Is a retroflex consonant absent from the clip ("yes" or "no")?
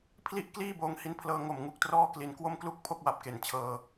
yes